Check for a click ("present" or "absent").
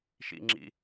present